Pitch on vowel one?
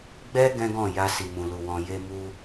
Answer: high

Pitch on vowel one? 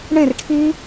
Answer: falling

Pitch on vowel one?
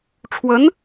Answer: rising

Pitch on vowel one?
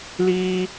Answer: high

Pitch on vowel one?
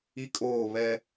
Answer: high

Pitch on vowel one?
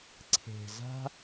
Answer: low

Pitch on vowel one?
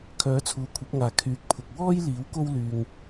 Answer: rising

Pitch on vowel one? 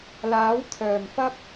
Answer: rising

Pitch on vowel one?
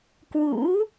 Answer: rising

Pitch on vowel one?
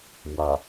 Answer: low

